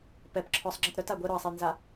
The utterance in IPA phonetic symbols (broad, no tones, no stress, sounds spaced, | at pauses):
p ɛ p ǁʰ ɔ sˤ ŋ͡ǁ ə t ɾ œ t a ɡʷ ɛ ɾ ɔ ɐ̯ sˤ e j n z a